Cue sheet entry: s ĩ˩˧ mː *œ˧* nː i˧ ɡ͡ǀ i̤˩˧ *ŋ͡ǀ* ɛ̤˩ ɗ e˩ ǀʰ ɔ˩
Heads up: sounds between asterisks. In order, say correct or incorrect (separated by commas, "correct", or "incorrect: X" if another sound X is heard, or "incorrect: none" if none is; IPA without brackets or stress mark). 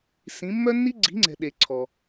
correct, correct